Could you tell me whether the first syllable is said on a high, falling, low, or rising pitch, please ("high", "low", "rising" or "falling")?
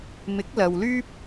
rising